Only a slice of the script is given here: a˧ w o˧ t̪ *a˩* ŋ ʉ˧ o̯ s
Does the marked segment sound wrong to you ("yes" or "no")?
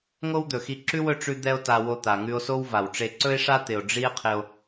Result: no